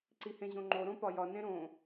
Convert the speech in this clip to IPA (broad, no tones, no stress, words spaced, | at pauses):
ǀihẽʑõŋ͡ǃo ɾõpɒjɒ nẽɾõ